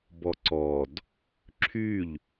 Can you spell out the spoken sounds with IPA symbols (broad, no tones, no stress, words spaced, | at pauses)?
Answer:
bɔǀɔd | ǁʰyʎ